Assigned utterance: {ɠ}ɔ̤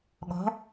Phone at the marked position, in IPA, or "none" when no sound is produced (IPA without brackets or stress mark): ɠ